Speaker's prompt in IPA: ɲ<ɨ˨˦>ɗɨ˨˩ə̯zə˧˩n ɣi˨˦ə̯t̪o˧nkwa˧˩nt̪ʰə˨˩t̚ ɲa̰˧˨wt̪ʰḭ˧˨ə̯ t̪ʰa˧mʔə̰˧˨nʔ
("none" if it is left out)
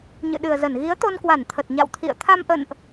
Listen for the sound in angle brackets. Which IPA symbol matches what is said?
ɨ̰˧˨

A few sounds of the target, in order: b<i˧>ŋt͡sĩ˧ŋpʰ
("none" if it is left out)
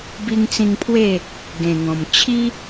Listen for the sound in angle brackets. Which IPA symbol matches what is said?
i˧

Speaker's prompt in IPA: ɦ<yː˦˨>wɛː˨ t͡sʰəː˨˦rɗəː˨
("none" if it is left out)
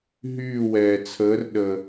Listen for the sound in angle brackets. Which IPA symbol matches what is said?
yː˦˨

